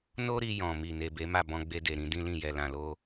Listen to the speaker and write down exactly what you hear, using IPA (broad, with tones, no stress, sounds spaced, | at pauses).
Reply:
n o˦ ɾ i˧ j ɔ̃˨ m i˨ n e˨ b e˨˦ m a˦˨ b ɔ̃˧ ɡ͡b e˧ d e˨ ɾ ĩ˨˦ d ĩ˦ l ĩ˦˨ j ɛ˨ l ã˨ l o˧